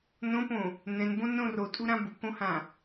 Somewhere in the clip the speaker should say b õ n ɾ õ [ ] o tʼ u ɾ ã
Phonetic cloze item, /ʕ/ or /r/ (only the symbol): r